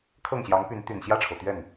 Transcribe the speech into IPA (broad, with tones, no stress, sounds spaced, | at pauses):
kʰ ɤ˥˩ ŋ ɕ j ɑ˧˥ ŋ p y˧˥ n t̪ y˨˩ n ɕ j ä˥˩ ʈ͡ʂʰ o˩ ʊ̯ t̪ ɥ ɛ˥˩ n